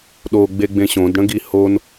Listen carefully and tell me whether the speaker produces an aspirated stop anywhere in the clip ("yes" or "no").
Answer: no